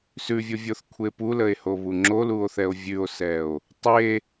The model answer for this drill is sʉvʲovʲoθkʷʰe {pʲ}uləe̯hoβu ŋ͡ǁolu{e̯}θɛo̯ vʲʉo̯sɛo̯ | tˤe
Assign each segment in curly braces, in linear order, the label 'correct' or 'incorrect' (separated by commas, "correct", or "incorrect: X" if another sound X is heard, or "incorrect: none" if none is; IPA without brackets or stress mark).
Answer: incorrect: p, incorrect: o̯